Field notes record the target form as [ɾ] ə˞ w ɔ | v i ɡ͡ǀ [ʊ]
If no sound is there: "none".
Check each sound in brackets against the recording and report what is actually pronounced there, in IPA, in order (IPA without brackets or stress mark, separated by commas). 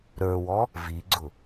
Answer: ɾ, ʊ